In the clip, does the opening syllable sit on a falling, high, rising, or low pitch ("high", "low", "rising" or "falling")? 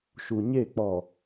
low